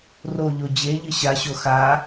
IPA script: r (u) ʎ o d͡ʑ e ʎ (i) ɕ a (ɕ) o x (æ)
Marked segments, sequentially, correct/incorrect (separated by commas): incorrect, incorrect, correct, incorrect